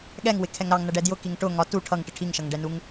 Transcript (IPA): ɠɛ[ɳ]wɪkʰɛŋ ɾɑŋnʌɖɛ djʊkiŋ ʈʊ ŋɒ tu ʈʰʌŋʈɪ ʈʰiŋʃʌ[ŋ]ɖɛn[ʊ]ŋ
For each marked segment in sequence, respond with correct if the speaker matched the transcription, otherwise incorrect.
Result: incorrect, correct, incorrect

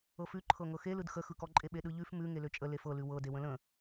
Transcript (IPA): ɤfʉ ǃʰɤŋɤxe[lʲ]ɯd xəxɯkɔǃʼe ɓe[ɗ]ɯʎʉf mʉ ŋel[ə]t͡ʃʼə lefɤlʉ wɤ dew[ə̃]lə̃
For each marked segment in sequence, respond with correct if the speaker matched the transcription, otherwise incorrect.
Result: incorrect, correct, incorrect, correct

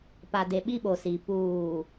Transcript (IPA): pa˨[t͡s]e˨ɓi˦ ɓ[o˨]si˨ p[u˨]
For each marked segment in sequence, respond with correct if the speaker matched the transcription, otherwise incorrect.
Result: incorrect, correct, incorrect

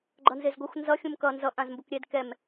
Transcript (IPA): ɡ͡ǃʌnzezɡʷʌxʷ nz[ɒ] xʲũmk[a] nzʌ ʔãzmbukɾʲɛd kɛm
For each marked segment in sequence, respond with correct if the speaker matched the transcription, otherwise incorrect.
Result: incorrect, incorrect

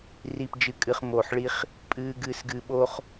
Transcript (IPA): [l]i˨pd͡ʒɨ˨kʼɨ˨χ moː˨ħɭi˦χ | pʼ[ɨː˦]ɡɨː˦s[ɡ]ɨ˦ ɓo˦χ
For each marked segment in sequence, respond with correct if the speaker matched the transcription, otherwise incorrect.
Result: incorrect, correct, correct

